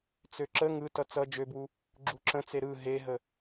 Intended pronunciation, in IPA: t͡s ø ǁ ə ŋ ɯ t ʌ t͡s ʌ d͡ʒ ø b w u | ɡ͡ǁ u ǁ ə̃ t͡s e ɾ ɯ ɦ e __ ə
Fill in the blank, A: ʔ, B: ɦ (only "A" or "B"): B